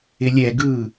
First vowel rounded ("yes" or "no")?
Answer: no